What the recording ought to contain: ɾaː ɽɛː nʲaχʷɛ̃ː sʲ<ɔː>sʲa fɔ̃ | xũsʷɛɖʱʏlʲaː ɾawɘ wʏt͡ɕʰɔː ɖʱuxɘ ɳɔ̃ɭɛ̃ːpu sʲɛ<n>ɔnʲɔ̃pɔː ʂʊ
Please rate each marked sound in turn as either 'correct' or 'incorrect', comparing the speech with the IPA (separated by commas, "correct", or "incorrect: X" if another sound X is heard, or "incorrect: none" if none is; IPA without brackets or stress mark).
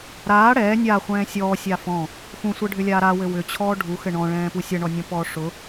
correct, incorrect: ɳ